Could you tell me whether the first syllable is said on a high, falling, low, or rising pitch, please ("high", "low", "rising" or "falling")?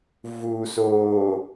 low